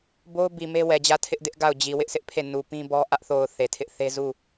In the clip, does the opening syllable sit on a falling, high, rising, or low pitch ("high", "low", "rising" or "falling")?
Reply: high